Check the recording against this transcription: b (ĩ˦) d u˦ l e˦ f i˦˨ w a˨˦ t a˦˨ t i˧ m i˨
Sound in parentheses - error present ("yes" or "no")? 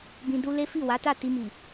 yes